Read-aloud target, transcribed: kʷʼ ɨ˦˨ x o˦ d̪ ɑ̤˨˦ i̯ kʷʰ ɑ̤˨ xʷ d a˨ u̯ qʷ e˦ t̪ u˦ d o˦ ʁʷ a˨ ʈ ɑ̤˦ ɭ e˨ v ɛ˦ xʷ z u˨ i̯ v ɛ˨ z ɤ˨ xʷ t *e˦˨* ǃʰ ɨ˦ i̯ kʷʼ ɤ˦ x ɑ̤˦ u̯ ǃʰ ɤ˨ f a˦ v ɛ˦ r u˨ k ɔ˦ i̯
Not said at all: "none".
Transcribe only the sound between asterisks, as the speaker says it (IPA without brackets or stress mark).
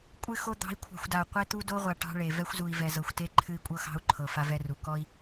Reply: e˦